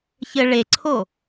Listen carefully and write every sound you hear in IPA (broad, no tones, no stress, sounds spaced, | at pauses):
ç ɘ ɭ e ǀʰ o